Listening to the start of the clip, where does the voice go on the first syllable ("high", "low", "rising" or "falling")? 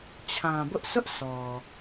low